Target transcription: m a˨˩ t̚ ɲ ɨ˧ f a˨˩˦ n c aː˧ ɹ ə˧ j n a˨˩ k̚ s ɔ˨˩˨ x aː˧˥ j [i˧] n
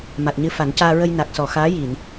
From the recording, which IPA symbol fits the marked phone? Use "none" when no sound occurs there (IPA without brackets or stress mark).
i˨˩˨